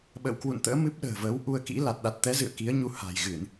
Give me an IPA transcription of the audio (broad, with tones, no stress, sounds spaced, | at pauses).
ɓ ə̰ː˧˨ w k w ṵ˧˨ n t̪ ə̰ː˧˥ m ɨ˦˥ p̚ ɗ ə̤ː˨˩ v əː˨˦ w ʔ u˧ ə̯ k ḭ˧˥ l a˨˩ t̚ ɗ a˨˩ t̚ t̪ ɛ˨˦ z ɨ̰˧˨ ə̯ k i˨˦ ə̯ ɲ u˨˦ h a̤˨˩ j ɣ ɨ˧˩˨ n